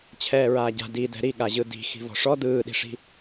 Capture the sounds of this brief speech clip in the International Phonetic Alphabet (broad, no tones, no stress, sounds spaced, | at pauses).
t͡ɕʰ ɛː ɹ aː ɟ a̤ d i d ɛ̤ ɾ i ɠ a ʑ ɯ d i̤ x i̤ v ɔ̤ ʂ ɔ d ɯː ɗ i̤ ʂ i̤